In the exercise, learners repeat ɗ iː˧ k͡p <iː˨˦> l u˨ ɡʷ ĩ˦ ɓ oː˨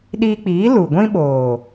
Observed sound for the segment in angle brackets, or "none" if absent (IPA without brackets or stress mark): iː˨˦